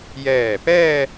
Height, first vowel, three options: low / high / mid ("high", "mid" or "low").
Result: mid